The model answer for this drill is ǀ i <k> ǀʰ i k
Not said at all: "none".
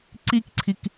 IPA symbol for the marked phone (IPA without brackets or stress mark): k